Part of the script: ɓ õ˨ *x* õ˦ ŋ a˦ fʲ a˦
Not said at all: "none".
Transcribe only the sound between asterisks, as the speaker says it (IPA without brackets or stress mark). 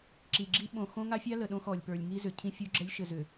x